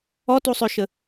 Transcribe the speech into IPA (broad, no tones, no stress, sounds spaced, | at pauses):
ɔ t u sˤ ø ʃ ə